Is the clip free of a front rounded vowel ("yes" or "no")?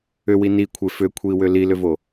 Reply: no